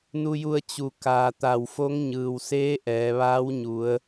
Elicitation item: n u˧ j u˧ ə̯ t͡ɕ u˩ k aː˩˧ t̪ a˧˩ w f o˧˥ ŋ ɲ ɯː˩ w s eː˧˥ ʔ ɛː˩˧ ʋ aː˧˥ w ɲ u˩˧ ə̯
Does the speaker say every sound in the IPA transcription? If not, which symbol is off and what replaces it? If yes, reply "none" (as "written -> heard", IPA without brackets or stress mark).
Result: none